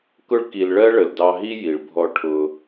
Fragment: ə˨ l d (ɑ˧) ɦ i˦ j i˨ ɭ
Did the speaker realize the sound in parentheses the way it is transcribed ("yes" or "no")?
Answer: yes